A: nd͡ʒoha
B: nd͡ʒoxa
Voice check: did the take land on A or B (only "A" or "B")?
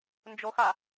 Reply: B